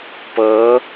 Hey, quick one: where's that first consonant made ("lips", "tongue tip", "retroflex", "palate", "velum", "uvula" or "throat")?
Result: lips